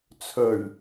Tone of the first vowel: low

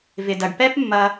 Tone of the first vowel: low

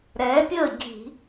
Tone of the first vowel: rising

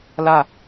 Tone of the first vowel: falling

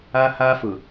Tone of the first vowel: high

